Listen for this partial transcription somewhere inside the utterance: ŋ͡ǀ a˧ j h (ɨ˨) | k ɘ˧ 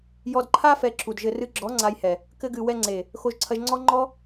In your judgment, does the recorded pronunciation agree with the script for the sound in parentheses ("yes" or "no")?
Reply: no